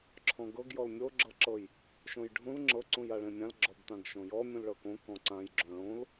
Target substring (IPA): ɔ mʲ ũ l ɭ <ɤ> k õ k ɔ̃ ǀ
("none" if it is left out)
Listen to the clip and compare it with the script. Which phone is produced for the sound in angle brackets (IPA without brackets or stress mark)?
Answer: ɤ